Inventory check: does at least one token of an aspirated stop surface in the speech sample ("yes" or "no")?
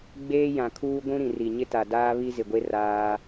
yes